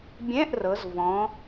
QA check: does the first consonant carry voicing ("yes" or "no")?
yes